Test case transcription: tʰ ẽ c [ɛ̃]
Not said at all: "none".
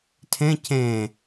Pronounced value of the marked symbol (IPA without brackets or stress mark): ẽ